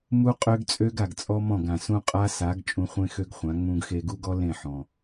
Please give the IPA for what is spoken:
m u˦ qʼ ø˦ ɡ t͡sʼ ø˦ ɡ a˨ ɡ t͡sʼ ɔ˦ m ɔ̃˦˨ ɡ ã˨ s ũ˦ qʼ a˦ s a˨˦ ɡ t͡ʃʼ ũ˧ χʷ ẽ˦ x ø˦ ɡ χʷ ã˨˦ ŋ͡m ũ˧ ɡ x e˧ ɡ u˦ ɡ ɔ˦ l ẽ˦˨ ħ ɔ̃˨

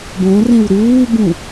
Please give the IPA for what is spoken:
b õ r ẽ w ɾ uː b ũ

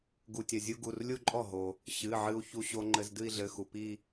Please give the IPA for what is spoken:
ɡ u˩ tʲ ɐ˩ zʲ u˧ ɡ u˩˧˩ r lʲ u˥˧ ǃʼ ɔ˥˩ ɦ o˩ | ɕ ɨ˩˧˩ ʕ ɨ˧ u̯ ç u˧ ɕ o˧ ŋ͡ǃ ɘ˧ z d ɨ˥˧ i̯ ɮ ɘ˩˧˩ x u˩ p i˥˧

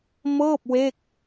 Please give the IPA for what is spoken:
m ɤː˥˩ p̚ w e˥˩ k̚

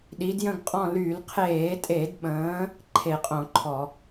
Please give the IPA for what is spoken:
ɗ i˨˦ d j ə̃˦˨ ɡ qʼ ɔ̃˦˨ l y˧˩˧ l qʰ eː˧˩˧ tʼ e˧˩˧ d ɓ ə̃ː˨˦ | ǃʰ e˧˩˧ qʼ õ˧˩˧ ǃʰ ɔ˧˩˧

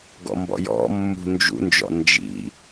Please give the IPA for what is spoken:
ɡ ɔ̰ m b ɔ̰ j ɔ̰ mː ṳ n d͡ʒ ṵ n d͡ʒ ɔ̰ n d͡ʒ ḭ

